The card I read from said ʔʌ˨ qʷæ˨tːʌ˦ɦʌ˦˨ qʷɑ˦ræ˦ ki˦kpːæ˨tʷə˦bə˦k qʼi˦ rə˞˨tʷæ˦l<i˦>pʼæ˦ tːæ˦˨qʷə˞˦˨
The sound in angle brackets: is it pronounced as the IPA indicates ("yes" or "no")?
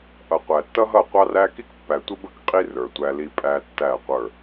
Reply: yes